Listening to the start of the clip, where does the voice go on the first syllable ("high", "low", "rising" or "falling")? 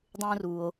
high